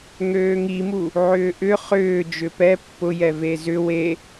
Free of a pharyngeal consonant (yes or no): no